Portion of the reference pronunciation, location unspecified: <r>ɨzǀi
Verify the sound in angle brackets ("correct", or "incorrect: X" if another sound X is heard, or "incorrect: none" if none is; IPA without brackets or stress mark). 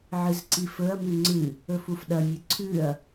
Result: incorrect: ʕ